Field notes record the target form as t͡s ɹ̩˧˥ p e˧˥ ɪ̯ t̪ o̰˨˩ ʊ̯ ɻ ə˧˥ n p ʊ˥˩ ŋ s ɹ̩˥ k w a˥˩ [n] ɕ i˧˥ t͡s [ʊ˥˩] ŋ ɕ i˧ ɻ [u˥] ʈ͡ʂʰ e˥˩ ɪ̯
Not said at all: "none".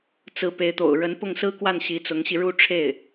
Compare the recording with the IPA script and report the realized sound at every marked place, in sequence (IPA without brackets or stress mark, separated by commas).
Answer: n, ʊ˧˥, u˥˧